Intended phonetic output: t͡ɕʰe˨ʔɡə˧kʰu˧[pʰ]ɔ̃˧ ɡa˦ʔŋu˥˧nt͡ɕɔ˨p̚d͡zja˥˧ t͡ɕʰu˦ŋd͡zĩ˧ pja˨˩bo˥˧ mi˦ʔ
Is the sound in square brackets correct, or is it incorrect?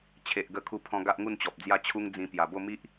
correct